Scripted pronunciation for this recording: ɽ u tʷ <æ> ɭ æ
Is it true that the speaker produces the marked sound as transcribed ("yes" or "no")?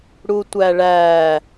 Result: yes